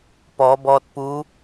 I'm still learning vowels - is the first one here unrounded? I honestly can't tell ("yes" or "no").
no